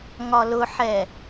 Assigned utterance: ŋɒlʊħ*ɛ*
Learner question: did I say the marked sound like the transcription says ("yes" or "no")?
yes